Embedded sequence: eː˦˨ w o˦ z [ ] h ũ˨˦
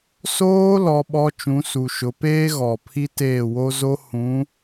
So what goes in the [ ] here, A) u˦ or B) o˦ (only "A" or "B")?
B